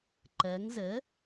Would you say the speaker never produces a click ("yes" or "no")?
no